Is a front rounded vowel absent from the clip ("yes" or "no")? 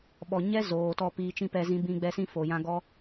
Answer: yes